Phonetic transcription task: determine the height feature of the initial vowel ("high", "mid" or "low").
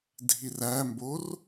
high